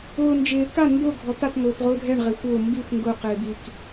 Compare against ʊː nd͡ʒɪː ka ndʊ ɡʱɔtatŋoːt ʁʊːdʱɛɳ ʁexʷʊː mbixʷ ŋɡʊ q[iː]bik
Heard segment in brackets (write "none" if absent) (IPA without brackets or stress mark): ɪː